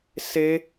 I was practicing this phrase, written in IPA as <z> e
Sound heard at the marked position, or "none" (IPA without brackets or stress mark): s